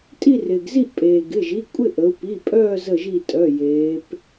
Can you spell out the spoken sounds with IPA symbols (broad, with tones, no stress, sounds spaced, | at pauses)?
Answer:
tʼ i˥˧ r ɪː˩ ɡ z i˥˧ ʔ pʼ eː˩ ɡ ɪ˩˧˩ ʒ i˩˧˩ kʷʼ ɪ˥˧ ʔ ə˩˧ u̯ p i˩˧˩ pʼ œː˥˧ z ə˧˩ ʒ i˧˩ tʼ œ˩˧˩ j eː˩˧ p